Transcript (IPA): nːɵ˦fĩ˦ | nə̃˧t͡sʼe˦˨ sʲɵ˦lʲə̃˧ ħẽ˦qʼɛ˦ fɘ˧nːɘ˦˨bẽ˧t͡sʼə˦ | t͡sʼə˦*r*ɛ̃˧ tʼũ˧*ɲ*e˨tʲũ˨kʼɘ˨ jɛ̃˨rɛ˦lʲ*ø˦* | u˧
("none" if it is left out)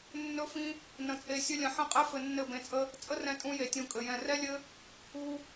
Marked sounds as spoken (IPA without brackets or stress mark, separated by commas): r, j, ɘ˦